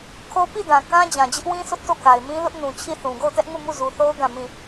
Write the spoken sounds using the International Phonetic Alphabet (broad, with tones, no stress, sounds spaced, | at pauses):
kʰ o˦ p i˦˨ d ã˨ k ã˦ d͡ʑ ã˨ d͡ʑ ɪ˦ ʔ w ĩ˦ sʰ ʊ˦ ʔ t o˦˨ k a˨ ɪ̯ m ĩ˦ l ʊ˦ ʔ n ũ˨ t͡ɕʰ i˦˨ θ ũ˨ ɡ o˦˨ ʊ̯ t ɛ˦ ʔ ŋ u˦˨ m u˦˨ z u˨ θ o˦ ʊ̯ ɡ ã˦˨ m ĩ˦˨